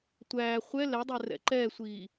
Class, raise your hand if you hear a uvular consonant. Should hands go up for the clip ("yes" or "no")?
yes